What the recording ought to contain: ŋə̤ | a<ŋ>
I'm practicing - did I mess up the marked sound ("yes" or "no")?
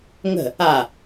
yes